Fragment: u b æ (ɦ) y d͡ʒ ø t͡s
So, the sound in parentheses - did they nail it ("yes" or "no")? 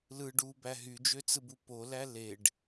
yes